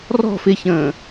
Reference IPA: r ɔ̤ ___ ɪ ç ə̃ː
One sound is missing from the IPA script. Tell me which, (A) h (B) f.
B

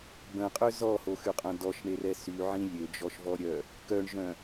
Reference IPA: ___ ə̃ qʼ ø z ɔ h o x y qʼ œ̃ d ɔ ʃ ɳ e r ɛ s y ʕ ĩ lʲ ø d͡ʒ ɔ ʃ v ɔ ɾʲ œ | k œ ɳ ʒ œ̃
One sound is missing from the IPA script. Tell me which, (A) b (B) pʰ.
A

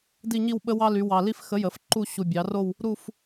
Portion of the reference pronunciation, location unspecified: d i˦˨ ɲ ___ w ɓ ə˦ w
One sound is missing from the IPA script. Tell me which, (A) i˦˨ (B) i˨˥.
A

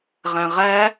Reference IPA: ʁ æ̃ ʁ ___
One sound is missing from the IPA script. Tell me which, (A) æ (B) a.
A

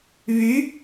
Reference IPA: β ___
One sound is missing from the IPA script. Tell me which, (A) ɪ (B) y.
B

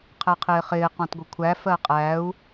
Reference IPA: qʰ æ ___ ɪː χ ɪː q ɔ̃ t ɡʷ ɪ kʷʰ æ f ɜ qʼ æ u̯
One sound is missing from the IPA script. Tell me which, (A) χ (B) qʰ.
B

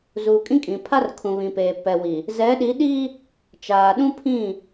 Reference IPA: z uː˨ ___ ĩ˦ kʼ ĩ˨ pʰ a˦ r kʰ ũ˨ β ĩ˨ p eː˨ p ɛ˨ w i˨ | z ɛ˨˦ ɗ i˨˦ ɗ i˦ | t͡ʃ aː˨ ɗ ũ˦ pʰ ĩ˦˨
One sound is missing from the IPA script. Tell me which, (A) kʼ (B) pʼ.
A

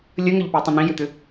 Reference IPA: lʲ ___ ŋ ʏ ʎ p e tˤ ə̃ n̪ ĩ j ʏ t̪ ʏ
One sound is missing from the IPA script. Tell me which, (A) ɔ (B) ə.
B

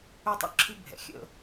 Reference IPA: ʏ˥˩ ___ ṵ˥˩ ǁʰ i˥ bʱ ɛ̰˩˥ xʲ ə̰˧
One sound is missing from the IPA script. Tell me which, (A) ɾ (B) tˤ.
B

